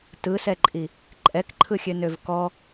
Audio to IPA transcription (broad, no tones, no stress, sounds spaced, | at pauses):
t ɯ s ɛ ǃʼ i | ǃʼ ɛ k ǃʰ ɯ xʲ ø n ø v k ɔ